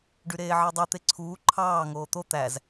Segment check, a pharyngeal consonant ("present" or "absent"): present